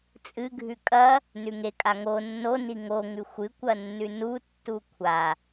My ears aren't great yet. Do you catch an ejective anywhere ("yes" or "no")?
yes